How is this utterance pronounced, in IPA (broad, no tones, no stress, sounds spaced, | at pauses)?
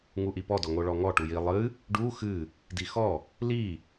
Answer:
ŋ u ʔ i p ɔ d ɔ ŋ o ɭ ɔ ŋ ɔ ʈ u j i lˠ ɨ | ɖ u x ɨ | d i x ɔ | l i